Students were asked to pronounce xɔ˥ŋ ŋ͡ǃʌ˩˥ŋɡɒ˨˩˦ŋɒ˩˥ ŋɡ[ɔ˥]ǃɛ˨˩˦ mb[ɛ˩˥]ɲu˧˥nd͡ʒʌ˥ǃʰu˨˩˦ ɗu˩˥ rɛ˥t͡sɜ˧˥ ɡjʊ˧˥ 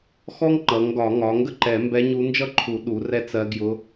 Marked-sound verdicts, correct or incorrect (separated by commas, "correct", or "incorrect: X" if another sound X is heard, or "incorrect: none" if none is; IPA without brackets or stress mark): incorrect: ə˥, incorrect: ɛ˧˥